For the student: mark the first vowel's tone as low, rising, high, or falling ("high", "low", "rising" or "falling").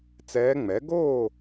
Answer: rising